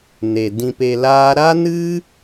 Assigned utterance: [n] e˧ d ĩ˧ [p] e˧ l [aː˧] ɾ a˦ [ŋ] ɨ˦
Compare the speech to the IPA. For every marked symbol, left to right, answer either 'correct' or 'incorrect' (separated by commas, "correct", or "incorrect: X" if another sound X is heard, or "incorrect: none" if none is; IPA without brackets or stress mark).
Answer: correct, correct, incorrect: aː˦, incorrect: n